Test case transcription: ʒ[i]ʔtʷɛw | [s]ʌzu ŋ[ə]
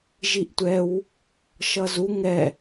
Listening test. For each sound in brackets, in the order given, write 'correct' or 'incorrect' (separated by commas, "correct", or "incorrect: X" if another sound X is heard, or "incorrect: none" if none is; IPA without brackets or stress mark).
correct, incorrect: ʃ, incorrect: ɛ